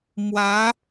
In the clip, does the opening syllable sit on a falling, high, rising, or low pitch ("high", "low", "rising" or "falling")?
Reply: rising